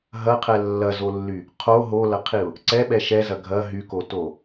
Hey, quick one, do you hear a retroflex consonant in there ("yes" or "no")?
no